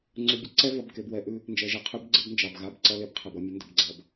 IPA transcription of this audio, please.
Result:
ŋ͡ǀ ʉ˨ bʲ ə˦ ǀ ɛ˦ v ʌ˨ b k e˨ b w ɛ˦ ʔ ʉ˦ | n d͡ʒ ɛ˨ ʒ e˨ qʰ ʉ˦ b ɡ͡ǀ ə˦ b n d͡ʒ ɑ˨ b ɣ a˦ b ǀ ʌ˦ l e˦ b qʰ e˨ b ʌ˦ mʲ ə˨˦ n d ə˨ b ɡ͡ǀ ʌ˨ b

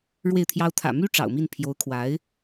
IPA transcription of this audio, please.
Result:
ɻ w e˥˩ ɪ̯ t̪ʰ j ɑ˥ ʊ̯ t̪ʰ ä̰˨˩ m y˥ ʈ͡ʂ ɑ̰˨˩ ʊ̯ m i˥˩ n pʰ j o˧˥ ʊ̯ kʰ w a˧˥ ɪ̯

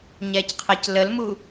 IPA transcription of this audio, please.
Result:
ɲ ɛ c qʰ ə c l ə l m u

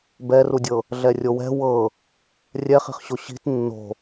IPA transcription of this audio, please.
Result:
b ɛ r u dʲ ɤ | ɮ ɛ rʲ o w ɛ̤ w ɤ | rʲ ɛ χ i̤ χ ɕ o ɕ i̤ t nː o̤

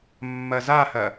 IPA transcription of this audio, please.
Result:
mː ɐ z a h ɐ

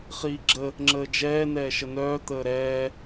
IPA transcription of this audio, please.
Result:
χ iː ɡ͡ǁ ə | ŋ͡ǁ əː d͡ʒ ɛː n ɛː ʃ ə n œː t̪ əː ɾ ɛː

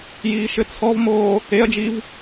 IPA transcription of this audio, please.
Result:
j iː ʃ ɘ t͡sʰ ɔ v m oː | e ɐ̯ d͡ʒ i v

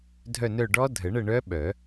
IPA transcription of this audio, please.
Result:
dʱ œ˦˨ n œ˦˨ ɖ ɔ˦˥ dʱ ə˨˩˦ ɳ ə˦˨ ɳ œ˦˥ ɓ œ˨˩˦

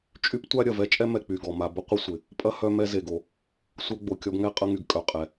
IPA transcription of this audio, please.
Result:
t͡ʃʼ y˦ p tʷ a˦ ɾʲ ɐ˩ v ɛ˦ t͡ʃʼ ɛ˥ m ɛ˨ k͡p y˩ ɡ ɔ˩ m a˨ b ə˦ qʷ ə˦ sʷ ɪ˩ | pʼ ɐ˥ h œ˦ m ɛ˥ z e˨ ɡ o˨ | sʷ œ˥ ɡ͡b o˩ kʲ ɔ˥ b ŋ ɛ˥ qʼ ɐ˦ ŋ y˩ ɡ kʼ œ˨ qʼ ɛ˩

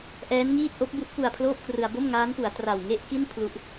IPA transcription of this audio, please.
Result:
ʔ ɛː˦˥ n ŋ iː˥˩ t̚ ʔ o˦˥ k̚ b u˦˥ ʔ p u˧ a̯ pʰ l oː˥˩ p̚ k r ɯ˧ a̯ b o˥˩ m ŋ aː˦˥ n p u˩˦ a̯ t r a˨˩ w ŋ e˥˩ ʔ k i˥˩ n pʰ l u˦˥ ʔ

